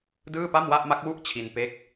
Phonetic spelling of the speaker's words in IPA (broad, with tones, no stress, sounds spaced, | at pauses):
d ɯː˥˩ p a˥˩ m w a˥˩ ʔ m a˦˥ k̚ w u˥˩ ʔ t͡ɕʰ i˧ n p e˦˥ k̚